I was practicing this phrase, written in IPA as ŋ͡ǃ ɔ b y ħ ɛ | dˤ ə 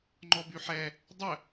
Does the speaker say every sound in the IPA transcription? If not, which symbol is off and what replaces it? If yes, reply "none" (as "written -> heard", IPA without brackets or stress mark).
none